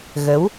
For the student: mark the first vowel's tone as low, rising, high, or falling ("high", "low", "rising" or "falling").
rising